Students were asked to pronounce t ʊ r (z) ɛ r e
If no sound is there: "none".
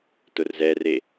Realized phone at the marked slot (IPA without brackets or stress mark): z